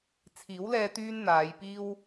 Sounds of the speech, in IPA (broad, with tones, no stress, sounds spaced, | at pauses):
t͡sʰ iː˨˥ w l ɛː˧ t̪ yː˥ n n̪ aː˨˧ j p iː˥ w